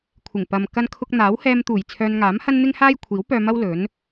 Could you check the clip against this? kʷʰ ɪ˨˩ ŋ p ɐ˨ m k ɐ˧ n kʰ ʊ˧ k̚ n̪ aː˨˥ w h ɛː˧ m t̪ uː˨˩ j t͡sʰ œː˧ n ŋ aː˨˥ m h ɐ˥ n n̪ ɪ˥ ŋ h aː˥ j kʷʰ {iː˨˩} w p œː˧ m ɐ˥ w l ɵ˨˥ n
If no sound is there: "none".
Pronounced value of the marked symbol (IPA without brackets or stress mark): iː˨˥